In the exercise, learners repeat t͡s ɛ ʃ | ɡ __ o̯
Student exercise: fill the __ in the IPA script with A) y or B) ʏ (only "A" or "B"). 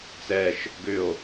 B